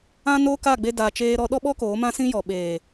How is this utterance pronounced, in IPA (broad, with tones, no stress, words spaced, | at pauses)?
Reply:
ã˦noː˦ ka˦˨ɡ͡be˧ da˨t͡ʃeː˧ɾɔ˧ ɗɔ˦ɓɔ˦ koː˨˦mã˦sĩ˦jɔ˨ ɓeː˨